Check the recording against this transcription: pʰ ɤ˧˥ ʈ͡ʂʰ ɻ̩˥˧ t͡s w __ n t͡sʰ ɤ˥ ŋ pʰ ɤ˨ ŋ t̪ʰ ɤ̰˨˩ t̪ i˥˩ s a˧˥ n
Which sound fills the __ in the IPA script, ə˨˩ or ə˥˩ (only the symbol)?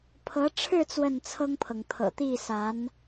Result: ə˥˩